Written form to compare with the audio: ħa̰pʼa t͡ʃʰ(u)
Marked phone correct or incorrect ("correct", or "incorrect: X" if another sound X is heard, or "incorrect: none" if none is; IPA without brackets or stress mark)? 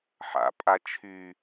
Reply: incorrect: y